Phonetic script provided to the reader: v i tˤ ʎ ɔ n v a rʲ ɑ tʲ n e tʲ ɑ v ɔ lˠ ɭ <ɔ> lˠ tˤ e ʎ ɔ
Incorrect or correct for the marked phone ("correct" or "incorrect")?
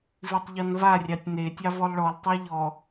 correct